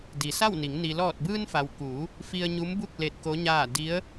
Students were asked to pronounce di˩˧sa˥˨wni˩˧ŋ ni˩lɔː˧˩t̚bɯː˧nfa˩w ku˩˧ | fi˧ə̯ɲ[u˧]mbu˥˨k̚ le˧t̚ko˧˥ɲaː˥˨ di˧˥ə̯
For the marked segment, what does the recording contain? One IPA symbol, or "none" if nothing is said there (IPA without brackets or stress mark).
u˧˥